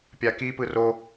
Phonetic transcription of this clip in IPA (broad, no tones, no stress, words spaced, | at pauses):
pʲaki pɯro